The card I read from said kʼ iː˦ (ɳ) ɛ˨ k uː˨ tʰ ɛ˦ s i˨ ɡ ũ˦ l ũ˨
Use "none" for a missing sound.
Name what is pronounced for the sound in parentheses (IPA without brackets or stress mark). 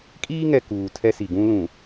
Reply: ŋ